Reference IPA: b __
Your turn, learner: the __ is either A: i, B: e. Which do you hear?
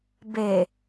B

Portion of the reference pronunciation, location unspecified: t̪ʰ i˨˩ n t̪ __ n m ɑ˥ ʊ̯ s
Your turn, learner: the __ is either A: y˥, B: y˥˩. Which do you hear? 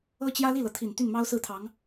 B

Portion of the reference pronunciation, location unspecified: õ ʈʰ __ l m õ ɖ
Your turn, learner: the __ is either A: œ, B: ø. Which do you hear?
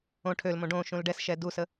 B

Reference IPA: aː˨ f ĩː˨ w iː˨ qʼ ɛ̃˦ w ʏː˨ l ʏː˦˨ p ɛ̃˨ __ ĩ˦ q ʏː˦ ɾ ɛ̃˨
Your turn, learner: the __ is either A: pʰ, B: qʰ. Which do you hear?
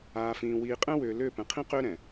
B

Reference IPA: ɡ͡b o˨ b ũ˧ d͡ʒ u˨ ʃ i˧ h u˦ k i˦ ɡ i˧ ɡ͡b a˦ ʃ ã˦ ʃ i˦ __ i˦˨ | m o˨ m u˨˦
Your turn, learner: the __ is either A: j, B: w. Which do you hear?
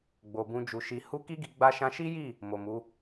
A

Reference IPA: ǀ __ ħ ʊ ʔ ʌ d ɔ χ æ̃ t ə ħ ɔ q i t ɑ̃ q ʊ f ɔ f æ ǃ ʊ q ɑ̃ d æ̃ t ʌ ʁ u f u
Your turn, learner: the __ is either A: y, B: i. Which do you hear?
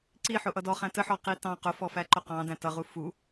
B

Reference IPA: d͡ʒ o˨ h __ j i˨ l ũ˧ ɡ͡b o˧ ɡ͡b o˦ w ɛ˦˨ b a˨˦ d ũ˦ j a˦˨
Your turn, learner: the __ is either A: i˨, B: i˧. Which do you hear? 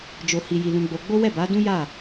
A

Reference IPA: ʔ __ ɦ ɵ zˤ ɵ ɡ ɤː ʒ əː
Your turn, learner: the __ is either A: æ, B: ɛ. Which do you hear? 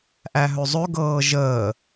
A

